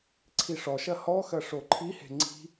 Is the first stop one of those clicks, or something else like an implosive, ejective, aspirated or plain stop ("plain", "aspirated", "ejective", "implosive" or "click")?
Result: click